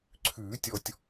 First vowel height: high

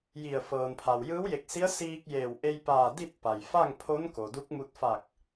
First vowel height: high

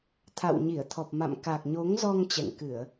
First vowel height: low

